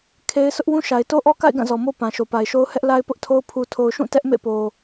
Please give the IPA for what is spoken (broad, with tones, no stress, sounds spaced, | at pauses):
kʰ e˦ ɪ̯ s ʊ˦ ʔ w ũ˦ ʃ a˨ ɪ̯ t o˦ ʔ ɔ˦ k a̰˦˨ ɪ̯ ɡ ã˦˨ z ɔ˨ m o˦ p ã˨ ʃ o˨ p a˨ ɪ̯ ʃ o˦ ʊ̯ h ɛ˦ ʔ l a˦ ɪ̯ p ʊ˦ ʔ tʰ o˦ ʊ̯ pʰ u˨ tʰ o˨ ʊ̯ ʃ ũ˦˨ t ɛ˦ ʔ m ḛ˦˨ p o˨